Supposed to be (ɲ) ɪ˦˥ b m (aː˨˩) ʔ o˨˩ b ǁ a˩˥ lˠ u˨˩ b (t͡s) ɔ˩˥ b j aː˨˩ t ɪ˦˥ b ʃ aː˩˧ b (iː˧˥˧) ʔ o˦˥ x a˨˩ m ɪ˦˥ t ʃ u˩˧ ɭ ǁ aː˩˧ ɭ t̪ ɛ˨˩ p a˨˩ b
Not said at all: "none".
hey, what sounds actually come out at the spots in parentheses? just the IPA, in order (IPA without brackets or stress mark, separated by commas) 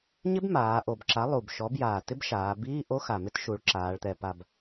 ɲ, aː˩˧, ʃ, iː˧˥˧